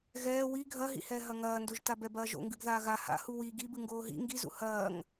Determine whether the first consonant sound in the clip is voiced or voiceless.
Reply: voiced